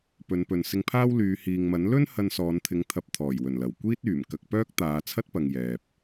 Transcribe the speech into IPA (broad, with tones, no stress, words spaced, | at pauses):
pɵ˨˧n pɵ˨n sɪ˧ŋpʰaː˥w lyː˨˧hiː˨ŋmɐ˨˥n lɵ˥n hɐ˧nsɔː˨˧nt̪ʰɪ˨˥ŋ t̪ʰɐ˨˥p̚ t̪ʰɔː˨˩j wɵ˨˩nlɐ˨˩w kʷiː˥t̚yː˨˩m kɐ˧k̚ pœː˥k̚t̪aː˨˧t͡sʰɐ˥t̚pɐ˨ŋ jɛː˨p̚